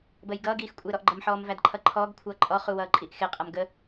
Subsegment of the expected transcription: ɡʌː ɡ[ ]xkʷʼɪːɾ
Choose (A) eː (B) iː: B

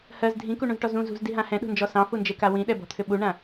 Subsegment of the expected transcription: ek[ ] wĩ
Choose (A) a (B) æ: A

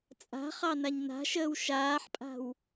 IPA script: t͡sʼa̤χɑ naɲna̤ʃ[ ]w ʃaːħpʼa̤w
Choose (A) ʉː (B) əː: B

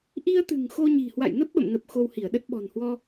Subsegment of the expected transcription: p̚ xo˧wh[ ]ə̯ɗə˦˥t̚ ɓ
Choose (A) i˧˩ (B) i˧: A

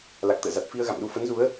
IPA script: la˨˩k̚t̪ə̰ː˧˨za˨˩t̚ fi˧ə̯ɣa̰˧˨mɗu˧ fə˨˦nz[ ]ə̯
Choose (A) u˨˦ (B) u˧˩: A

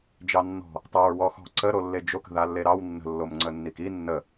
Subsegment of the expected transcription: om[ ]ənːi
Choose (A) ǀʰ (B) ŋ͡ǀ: B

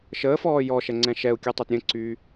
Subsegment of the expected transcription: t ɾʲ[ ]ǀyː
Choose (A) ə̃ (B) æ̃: A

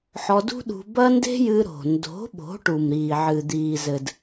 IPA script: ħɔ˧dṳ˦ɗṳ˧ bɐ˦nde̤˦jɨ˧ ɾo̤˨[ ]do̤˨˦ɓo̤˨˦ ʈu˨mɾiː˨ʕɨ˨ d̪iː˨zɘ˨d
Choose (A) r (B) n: B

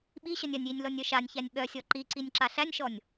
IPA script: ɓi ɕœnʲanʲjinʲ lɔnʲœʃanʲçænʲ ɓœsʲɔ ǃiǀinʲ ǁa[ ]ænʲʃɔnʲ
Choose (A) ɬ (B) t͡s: A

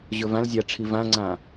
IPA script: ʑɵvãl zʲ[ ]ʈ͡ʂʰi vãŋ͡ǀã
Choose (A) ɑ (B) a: B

